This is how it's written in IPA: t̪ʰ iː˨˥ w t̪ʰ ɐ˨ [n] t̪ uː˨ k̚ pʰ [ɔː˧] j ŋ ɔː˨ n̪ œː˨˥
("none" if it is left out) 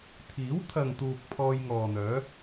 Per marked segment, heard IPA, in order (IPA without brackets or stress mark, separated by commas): ŋ, ɔː˧